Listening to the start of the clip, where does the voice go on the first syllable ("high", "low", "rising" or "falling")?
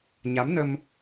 rising